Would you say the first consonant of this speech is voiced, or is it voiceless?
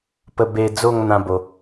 voiceless